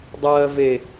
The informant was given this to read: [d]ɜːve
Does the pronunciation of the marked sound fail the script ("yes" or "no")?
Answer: yes